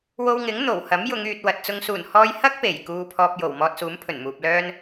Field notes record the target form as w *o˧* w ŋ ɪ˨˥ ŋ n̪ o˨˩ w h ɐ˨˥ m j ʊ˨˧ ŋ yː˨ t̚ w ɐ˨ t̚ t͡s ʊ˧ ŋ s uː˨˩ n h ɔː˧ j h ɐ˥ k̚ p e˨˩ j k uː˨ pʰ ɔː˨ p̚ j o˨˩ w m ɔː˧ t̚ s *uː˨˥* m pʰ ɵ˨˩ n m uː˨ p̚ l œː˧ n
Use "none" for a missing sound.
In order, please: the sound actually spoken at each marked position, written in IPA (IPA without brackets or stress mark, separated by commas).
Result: o˧, uː˨˥